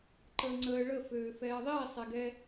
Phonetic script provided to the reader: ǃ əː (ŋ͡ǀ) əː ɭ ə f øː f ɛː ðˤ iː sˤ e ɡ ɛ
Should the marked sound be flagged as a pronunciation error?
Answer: no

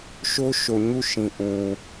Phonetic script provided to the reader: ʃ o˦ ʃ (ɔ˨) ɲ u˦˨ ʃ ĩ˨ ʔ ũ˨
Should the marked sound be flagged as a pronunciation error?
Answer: yes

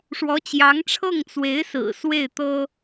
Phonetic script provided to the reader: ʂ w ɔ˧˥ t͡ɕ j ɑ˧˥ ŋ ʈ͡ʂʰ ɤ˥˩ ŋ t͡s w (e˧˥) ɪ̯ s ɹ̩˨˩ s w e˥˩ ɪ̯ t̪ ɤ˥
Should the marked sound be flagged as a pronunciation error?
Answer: no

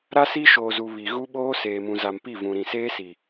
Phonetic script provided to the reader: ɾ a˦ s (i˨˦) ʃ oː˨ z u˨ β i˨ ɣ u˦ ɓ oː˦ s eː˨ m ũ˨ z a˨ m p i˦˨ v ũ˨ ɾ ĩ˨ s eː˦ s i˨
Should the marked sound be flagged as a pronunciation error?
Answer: yes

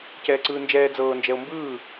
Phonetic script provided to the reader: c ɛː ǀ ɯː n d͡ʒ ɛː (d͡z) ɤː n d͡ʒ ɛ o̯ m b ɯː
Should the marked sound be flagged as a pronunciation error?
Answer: no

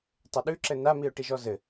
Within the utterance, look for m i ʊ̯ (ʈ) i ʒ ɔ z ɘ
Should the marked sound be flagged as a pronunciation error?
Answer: no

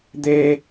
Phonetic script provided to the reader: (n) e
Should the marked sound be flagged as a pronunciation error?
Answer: yes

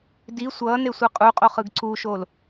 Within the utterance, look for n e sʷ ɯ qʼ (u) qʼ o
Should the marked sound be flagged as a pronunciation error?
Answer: no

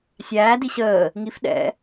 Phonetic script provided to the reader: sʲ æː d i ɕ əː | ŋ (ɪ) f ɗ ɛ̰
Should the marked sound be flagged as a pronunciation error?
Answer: yes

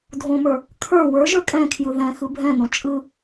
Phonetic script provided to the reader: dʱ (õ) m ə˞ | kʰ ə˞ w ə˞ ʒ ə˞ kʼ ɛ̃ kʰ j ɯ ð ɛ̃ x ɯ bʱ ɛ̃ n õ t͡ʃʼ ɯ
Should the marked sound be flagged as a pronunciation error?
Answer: no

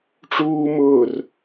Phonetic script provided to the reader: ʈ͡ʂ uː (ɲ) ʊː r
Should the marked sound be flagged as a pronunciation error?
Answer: yes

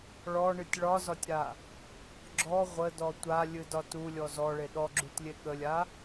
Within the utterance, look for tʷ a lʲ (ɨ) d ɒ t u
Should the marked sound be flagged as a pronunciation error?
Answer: no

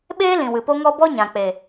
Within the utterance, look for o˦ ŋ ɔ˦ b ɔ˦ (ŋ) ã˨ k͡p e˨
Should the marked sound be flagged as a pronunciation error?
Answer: yes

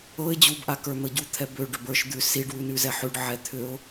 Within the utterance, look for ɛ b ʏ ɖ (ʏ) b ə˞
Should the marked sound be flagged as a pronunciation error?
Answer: no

